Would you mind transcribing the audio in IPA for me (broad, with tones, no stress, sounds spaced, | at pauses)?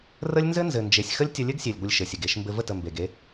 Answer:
r ə˦ lʲ n z ɘ˦ n z ɘ˨ n d͡ʒ e˨ sʲ x ə˦ lʲ tʲ ə˧ lʲ ɘ˦ ɡ sʲ e˨ lʲ ɡʷ ə˧ lʲ ʃ ɘ˨ sʲ ɘ˨ ɡ e˧ ʃ m b ɘ˧ v ə˦˨ t ə˨ m b e˨ ɡ e˧